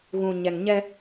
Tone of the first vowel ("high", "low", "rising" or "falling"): low